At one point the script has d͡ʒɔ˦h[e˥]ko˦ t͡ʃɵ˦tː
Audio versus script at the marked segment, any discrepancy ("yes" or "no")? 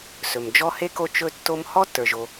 no